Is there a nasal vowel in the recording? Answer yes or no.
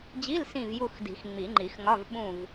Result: yes